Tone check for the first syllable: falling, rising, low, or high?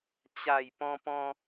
low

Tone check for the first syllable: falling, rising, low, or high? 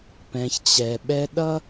low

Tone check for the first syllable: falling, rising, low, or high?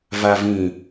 low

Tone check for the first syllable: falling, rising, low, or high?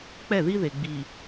falling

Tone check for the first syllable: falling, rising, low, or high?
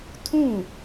falling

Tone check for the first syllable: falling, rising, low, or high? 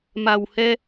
low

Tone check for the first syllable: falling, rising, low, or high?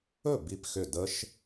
falling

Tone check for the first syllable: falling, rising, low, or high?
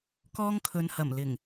high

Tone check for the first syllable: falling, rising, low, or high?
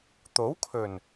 rising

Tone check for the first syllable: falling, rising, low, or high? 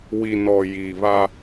low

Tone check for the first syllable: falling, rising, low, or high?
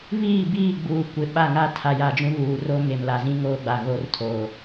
falling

